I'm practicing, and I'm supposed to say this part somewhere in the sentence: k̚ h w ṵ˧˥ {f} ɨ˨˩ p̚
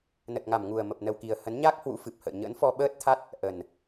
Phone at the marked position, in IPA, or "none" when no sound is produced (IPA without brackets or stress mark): f